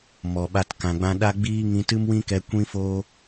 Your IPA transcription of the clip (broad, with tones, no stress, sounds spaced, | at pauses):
m ɔ˨ ɓ a˧ t k ã˨ ɡ͡b ã˧ ɗ a˦ ɡ͡b iː˦ ŋ ĩ˧ t ɨ˦ m w ĩ˦ k ɛ˧ kʷ ĩ˦ f oː˦